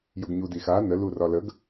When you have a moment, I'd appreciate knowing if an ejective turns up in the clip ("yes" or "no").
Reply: no